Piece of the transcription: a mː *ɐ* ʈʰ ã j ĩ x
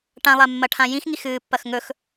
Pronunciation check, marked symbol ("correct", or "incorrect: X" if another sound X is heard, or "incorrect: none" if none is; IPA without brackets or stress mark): correct